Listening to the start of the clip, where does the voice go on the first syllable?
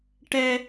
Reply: high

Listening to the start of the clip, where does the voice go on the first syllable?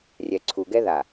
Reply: low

